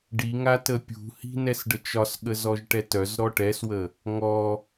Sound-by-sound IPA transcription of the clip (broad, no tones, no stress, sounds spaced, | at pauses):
ɖ i ŋ a t ə pʲ ṳ h i̤ n ɛ s ɖ ə t͡ʃ ɒ s ɠ ə z ɔ ʒ ʈ ɛ t œ z ɾ ɔ ʈ ɛ s w ə | ŋ ɔ